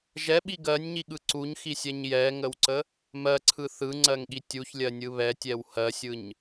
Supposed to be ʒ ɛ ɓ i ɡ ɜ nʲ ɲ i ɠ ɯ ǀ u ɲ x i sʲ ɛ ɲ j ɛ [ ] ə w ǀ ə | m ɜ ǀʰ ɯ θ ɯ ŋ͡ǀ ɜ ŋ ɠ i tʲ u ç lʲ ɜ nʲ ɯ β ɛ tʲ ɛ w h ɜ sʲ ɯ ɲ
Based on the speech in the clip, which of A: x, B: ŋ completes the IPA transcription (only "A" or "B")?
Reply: B